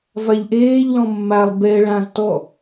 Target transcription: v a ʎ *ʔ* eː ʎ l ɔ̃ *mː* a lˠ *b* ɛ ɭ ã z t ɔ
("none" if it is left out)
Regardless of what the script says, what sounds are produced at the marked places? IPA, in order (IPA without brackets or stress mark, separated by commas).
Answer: ʔ, mː, b